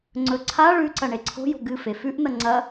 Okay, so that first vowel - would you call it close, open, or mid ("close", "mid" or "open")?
mid